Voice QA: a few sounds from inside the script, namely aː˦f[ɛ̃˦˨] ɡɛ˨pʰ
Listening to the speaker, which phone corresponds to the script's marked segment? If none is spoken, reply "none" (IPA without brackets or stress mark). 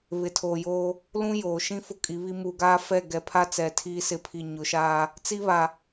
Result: ɛ˦˨